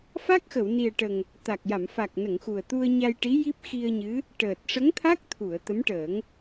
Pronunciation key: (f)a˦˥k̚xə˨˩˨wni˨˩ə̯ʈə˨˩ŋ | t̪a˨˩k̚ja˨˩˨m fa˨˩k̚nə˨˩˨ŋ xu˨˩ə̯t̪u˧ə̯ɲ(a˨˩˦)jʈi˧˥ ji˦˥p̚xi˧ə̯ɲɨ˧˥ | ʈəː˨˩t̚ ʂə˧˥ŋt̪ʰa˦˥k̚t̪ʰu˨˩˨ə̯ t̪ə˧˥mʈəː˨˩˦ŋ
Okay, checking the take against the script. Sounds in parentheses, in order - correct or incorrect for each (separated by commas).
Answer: correct, incorrect